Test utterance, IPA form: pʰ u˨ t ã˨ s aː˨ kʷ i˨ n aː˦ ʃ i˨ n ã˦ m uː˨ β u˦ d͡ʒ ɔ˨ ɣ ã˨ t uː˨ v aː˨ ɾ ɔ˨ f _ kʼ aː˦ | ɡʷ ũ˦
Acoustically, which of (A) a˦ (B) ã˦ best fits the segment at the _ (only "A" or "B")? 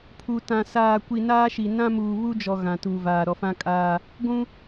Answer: B